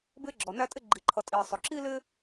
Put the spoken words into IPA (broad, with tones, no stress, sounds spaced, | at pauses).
b ɪː˧ ɡ͡ǁ ɔ˩ n æ˧ tʼ ɪ˧ ɡ͡ǃ i˩ ǃʰ ʌ˩ tʼ iː˩ sˤ ʊ˩ ǁ i˥ l ɪ˥